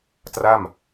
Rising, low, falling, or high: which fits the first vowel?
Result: falling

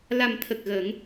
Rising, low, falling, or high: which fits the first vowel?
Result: low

